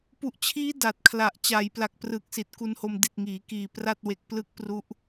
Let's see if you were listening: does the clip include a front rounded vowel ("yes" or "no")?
no